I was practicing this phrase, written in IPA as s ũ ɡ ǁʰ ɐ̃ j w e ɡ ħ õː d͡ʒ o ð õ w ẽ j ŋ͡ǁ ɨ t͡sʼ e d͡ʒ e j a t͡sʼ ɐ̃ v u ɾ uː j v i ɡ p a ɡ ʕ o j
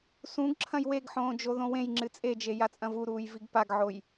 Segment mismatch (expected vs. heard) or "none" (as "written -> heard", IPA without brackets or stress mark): none